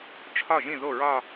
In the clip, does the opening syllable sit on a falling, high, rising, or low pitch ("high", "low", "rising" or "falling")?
falling